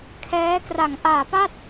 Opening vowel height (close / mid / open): mid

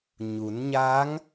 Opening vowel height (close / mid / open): close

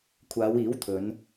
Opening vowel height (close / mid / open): open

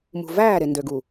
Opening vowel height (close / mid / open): close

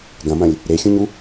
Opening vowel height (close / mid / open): open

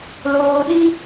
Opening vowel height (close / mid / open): mid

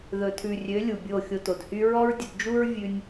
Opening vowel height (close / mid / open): mid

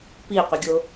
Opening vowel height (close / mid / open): close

